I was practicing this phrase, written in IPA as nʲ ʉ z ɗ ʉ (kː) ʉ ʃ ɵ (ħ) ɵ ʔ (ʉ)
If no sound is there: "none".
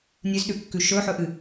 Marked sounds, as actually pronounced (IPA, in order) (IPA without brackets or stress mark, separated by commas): kː, ħ, ɨ